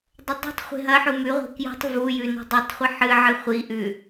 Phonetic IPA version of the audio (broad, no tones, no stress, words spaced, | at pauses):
dˤɐdˤi̤tˤχʷe̤ ɦɐħu mʉʁʷe̤ kjṳtˤ vujʉ nṳdˤetˤχʷi ħɨʕɨ χʷiʔʉ